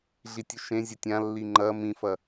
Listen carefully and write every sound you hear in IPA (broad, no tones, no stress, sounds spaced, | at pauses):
ɮ i tʲ ʉ ʃ ẽ zʲ ɐ tʲ ã lː i ŋ͡ǃ ɐ m ĩ f ɐ